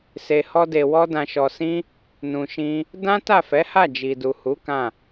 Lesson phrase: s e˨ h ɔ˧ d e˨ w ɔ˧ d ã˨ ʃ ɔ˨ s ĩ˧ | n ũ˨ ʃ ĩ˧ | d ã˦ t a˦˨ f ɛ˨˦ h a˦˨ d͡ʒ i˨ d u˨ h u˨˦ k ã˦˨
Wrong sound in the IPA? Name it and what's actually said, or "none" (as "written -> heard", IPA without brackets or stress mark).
none